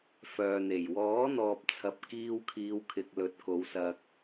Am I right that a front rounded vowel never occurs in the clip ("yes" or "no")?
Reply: no